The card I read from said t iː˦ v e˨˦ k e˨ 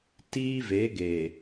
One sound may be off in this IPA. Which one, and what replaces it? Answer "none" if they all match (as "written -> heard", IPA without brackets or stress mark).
k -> ɡ